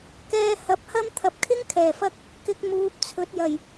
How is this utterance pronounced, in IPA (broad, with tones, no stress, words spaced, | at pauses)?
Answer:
kɛː˧ hɐ˨˥p̚hɐ˥m t̪ʰɐ˨p̚kʰɪ˥ŋ kʰɛː˨˩fɐ˥k̚ | kɪ˧k̚ muː˨˥p̚t͡sʰɵ˨˥t̚jɐ˨˩j